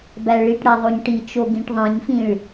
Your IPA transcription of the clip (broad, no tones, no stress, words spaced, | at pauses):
bæɭiʈɽæ ðˤoɲʈit͡ʃo ɡĩʈðˤĩɲfĩɭ